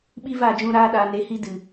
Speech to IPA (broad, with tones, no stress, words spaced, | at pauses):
ɓi˦va˦˨d͡ʒũ˧ ɾaː˦ɗa˧ ne˧hi˦ dɨ˨